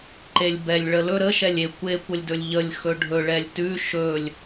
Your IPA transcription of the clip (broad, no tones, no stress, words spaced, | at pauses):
ǃelʲbɛlʲ ɭəlɵ ɾə ʃɛlʲe kʷe kʷəlʲdɵlʲʎəlʲ xɵɖʱɵ ɭɛlʲtʉ ʃɵlʲ